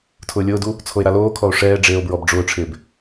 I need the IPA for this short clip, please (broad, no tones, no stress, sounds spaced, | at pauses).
tʰ ʊː lʲ ʊː d u | t͡sʰ o e̯ ɾ a l oː kʰ ɔ o̯ ʂ ɛː ɖ͡ʐ eː o̯ b ɹ ɔ b ɖ͡ʐ ʊː ʈ͡ʂʰ ɪː b